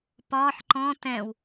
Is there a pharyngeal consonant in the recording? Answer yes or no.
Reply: yes